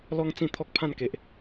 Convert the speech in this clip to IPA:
l ɔ˧ ŋ t͡s ĩ˥˧ t̪ʰ ɔ˦ k̚ pʰ ã˥˧ n k e˨ ʔ

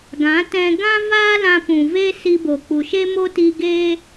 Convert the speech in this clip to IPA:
ɡ ã˨˦ t ɛ̃˧ ɡ ã˦ v aː˦ l ã˧ p ũ˨ v e˦ s i˧ b o˨ k͡p u˨ ʃ e˦ m o˦ t i˧ ɡ e˦

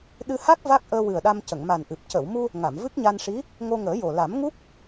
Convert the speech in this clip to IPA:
ɗ ɨ˧ h a˦˥ k̚ v a˦˥ k̚ ʔ əː˧ w ɨ˨˩ ə̯ ɗ a˧ m c ə˨˩˨ ŋ m a˨˩ n ʔ ɨ˨˩ p̚ c ə˨˩˨ w m u˧ | ŋ a˨˩˨ m v ɨ˦˥ k̚ ɲ a˧ n ʂ i˧˥ | ŋ o˧ ŋ əː˨˩˦ j o˨˩ l a˨˩˦ m ŋ u˦˥ k̚

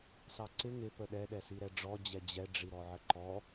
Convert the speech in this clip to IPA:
s ɑ ǀ ɪ ŋ ɪ p ə ɗ ɛ ɗ ɛ s i ɾ ɛ ɖ͡ʐ ɔ d͡ʑ ɛ d͡ʑ ɛ ɖ͡ʐ i ɾ ɔ ʕ ə ǃ ɔ

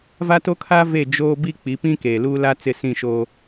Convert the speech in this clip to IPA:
v a˦ t o˦ kʰ a˦ v e˦˨ d͡ʒ oː˦ b i˦ k͡p i˨˦ p ĩ˦ k eː˨ l uː˦ l a˦ t͡s ɪ˦˨ s ĩ˦˨ ʃ oː˦

